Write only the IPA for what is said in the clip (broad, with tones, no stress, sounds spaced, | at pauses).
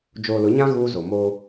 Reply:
d͡ʒ oː˨ l ʊ˨˦ ɲ ã˦ ɣ uː˦ z o˨ m oː˦